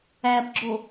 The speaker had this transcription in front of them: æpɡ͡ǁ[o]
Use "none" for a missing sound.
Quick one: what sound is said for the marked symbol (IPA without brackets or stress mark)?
o